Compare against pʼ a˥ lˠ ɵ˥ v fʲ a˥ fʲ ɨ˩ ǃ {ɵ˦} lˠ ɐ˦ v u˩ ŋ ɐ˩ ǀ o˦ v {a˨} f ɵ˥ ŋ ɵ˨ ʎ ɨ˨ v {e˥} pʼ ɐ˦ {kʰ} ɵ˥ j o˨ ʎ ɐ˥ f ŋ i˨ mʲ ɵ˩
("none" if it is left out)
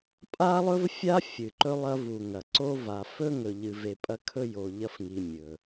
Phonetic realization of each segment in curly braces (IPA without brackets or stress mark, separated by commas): ɵ˦, a˨, e˨, kʰ